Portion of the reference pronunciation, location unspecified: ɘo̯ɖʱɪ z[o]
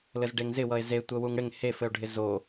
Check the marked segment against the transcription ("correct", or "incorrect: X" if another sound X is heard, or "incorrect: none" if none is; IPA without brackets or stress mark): correct